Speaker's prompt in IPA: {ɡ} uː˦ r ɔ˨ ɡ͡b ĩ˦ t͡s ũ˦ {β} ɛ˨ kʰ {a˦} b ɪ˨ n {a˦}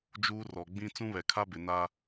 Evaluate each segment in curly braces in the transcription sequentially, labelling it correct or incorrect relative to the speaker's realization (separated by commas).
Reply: incorrect, correct, correct, correct